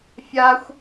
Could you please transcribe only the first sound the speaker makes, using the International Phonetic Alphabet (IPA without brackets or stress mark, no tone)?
fʲ